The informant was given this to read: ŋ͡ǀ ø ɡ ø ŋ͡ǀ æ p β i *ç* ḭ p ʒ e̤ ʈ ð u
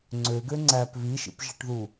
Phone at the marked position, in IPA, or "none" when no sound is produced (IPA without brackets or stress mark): ʃ